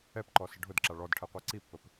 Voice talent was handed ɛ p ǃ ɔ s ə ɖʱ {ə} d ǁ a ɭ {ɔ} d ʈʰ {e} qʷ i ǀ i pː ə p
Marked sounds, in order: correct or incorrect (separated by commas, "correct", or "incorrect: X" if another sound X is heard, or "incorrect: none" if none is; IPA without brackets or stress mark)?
incorrect: ʊ, correct, incorrect: ɛ